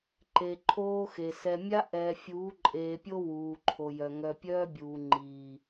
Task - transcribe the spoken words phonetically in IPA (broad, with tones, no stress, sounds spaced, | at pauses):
ǃ e˨ ǃʰ oː˦ x e˨ s ɛ˨ mʲ a˦ ʔ ɛː˨ fʲ uː˨˦ ǃʼ eː˨ pʲ o˦ w uː˨ ǃʰ o˨ j œ˨ ŋ œ˨ pʲ œː˦ bʲ uː˨ ŋ͡ǃ iː˨